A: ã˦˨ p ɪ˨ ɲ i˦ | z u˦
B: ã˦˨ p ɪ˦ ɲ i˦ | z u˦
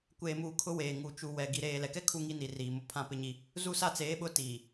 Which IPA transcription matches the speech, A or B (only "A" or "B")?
B